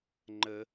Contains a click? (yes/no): yes